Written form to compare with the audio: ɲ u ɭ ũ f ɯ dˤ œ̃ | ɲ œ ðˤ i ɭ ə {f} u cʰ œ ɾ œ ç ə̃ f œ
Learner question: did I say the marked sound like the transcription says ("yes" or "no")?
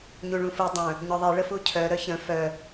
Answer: yes